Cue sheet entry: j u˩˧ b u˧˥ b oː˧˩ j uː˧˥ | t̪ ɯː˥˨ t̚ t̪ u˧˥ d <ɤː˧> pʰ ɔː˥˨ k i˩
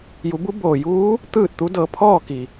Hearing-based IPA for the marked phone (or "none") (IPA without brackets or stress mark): ɤː˧